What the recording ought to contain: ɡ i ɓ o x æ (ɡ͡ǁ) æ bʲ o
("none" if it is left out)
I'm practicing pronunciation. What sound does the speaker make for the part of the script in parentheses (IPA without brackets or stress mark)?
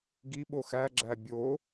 ɡ͡ǁ